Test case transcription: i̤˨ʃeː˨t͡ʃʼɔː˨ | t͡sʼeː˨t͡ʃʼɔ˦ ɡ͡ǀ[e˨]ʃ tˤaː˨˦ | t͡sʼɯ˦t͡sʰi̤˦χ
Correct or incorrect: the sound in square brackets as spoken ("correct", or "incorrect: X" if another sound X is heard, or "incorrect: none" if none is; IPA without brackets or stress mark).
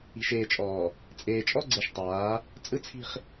correct